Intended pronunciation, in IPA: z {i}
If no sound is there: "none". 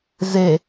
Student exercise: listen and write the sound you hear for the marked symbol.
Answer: e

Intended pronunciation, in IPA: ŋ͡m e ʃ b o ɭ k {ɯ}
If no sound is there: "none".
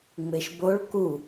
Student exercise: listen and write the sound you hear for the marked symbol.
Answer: u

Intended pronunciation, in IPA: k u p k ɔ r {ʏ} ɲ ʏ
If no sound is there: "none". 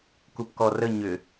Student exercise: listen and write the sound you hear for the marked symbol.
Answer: ə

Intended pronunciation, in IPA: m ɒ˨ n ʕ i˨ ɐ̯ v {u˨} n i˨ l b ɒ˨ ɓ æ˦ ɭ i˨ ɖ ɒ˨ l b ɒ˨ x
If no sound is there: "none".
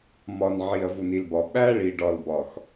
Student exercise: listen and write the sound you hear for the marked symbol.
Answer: u˨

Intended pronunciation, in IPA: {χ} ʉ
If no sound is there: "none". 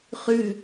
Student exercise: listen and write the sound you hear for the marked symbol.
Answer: χ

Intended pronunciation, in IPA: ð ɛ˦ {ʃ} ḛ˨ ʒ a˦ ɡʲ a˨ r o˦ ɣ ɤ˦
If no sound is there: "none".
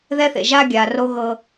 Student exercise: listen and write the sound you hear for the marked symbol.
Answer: θ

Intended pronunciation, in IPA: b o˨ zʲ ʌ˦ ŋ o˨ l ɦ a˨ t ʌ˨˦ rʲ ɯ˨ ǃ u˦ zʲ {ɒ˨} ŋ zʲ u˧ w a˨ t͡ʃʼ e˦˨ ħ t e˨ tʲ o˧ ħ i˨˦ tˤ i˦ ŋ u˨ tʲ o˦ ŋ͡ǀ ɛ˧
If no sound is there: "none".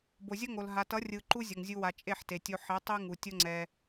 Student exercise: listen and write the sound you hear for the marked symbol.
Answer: ʌ˨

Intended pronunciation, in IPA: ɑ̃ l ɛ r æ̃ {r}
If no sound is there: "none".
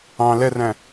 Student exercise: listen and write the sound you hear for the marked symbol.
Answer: none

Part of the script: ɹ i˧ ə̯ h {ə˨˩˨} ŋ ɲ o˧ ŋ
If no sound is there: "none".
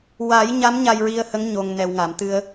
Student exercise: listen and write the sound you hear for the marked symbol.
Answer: ə˧˥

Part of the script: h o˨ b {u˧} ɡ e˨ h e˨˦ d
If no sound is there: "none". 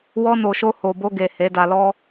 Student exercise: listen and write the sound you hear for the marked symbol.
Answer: o˧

